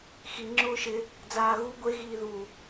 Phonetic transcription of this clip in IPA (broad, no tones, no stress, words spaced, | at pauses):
xi ŋ͡ǁʊːʃɪ | d͡zaːɣu ɡʷe ɣiːðu